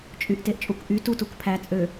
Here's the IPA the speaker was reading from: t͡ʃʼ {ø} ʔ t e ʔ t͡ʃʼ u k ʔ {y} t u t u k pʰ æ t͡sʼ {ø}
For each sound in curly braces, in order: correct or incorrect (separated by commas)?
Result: incorrect, correct, correct